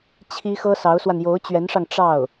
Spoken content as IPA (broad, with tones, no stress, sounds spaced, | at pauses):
t͡ɕʰ i˥ x ɤ˥ s ɑ˧˥ ʊ̯ s w a˧ n j o˧˥ ʊ̯ t͡ɕ ɥ ɛ˧˥ n ʂ ɑ˧ ŋ ʈ͡ʂ ɑ˥˩ ʊ̯